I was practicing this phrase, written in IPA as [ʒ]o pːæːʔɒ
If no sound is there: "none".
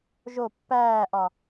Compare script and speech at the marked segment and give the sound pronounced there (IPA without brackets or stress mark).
ʒ